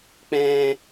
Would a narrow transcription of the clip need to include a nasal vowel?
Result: yes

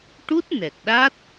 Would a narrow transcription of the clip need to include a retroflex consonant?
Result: yes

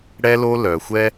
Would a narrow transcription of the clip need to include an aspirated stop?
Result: no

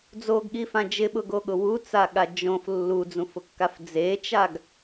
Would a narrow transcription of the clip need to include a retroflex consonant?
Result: no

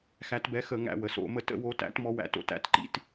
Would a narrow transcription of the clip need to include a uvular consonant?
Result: no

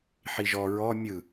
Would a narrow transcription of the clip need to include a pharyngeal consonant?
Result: yes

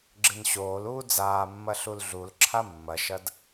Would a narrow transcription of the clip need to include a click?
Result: yes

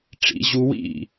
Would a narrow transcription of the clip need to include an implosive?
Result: no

